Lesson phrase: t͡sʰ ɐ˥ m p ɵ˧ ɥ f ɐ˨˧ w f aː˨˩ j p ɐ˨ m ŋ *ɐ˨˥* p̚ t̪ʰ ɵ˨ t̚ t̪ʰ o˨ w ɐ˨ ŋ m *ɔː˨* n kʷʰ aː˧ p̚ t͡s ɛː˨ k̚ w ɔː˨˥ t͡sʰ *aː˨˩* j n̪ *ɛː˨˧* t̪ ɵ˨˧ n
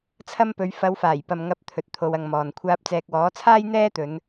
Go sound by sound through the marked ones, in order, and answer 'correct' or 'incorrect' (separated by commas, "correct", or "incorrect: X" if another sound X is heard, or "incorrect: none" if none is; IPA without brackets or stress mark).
correct, correct, incorrect: aː˥, incorrect: ɛː˥